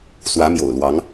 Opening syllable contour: rising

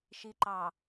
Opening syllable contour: low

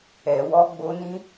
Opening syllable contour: low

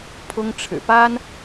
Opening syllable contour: high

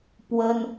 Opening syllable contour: high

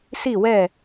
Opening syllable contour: falling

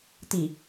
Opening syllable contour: low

